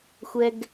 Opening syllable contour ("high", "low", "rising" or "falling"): high